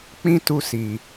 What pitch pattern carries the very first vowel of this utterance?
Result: high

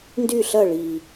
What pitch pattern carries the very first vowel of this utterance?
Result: falling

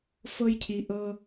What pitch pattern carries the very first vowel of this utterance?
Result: low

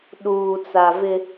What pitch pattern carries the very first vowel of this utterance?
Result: low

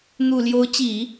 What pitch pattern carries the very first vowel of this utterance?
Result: low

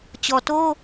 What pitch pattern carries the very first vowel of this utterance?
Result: low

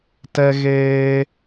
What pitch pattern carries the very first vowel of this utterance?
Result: high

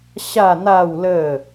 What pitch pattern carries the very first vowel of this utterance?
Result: falling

